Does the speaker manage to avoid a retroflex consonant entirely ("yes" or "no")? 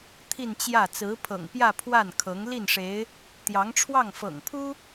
no